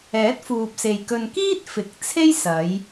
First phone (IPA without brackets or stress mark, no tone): ɛː